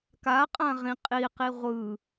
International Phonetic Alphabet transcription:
k a qʼ ã ʁ ĩ qʼ i q i ʁʷ ɯ

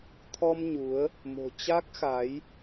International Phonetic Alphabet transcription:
t̪ʰ ɔ˧ m ɲ u˨˦ ə̯ | m o̤˨˩ t͡ɕ a˦˥ k̚ x a˨˦ j

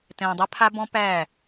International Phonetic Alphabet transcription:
t ɛ̃ː˨ dˤ ɛ˦ pʰ a˦ b ɔ̃˦ p æː˦˨

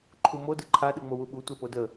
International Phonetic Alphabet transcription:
ǃʰ u m o d ɯ ǃʰ a ɗ ɯ ŋ͡m o w u ɓ u tʷ ɛ p o d ə

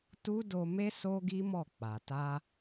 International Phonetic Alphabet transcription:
t u˦ d o˧ m e˦ s o˦ ɡ i˦ m ɔ˦˨ k͡p a˨ t a˧

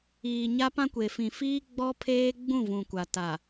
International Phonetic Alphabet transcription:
iː˨ ɲ a˦ p ã˦ kʷ e˨ f ĩ˨ f iː˦ ɡ͡b ɔ˦ pʰ eː˦ ɡ͡b ũ˦˨ v ũ˨ kʷ a˨ t a˨

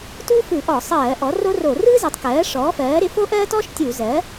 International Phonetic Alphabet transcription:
t u˥ f ɯ˧˩˧ ʔ ɔ˧˩˧ sˤ ɜː˧˩˧ ʔ ɔ˩˥ r o˥ r o˧˩˧ r ɯ˥ z ɪ˩˥ tˤ k ɜː˩˥ ʂ ɔː˩˥ f ɜː˩˥ ɾ ɪ˩˥ f o˥ ʔ ɜː˥ t ɔ˥ ʃ tʲ u˧˩˧ z ɜ˩˥

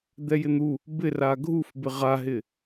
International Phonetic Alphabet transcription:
d̪ ɛ j ɪ n̪ u | b ɪ r a ɡʱ u f b ɪ ʁ a ɦ ɪ

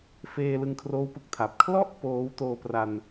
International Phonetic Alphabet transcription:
f eː˧ l ɯ˧ ŋ kʰ r oː˦˥ w p ɯ˨˩ k̚ tʰ a˨˩ p̚ kʰ l ɔ˥˩ ʔ p oː˦˥ w t oː˧ p r a˧ n

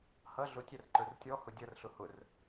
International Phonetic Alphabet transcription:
h ʌ ɮ ʊ tʲ æ r ǃ ə˞ r tʲ ɔ h ʊ dʲ ʌ r ɬ ʊ h ʊ r

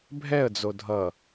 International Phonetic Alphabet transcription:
bʱ ɛ ə̯ d͡z o dʱ ʌ

